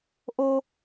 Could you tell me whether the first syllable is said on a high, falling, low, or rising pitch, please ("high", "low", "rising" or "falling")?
high